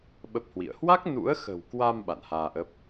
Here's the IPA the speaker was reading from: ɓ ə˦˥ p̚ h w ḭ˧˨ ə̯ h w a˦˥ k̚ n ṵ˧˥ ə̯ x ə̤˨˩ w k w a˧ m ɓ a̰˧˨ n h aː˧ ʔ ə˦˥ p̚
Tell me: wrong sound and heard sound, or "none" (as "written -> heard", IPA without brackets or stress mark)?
none